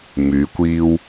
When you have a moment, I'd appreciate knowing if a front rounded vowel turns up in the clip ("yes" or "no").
yes